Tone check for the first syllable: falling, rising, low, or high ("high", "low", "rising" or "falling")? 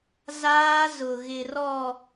high